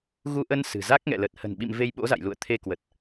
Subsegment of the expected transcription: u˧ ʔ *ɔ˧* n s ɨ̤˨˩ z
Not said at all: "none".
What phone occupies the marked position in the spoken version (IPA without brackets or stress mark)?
ə˧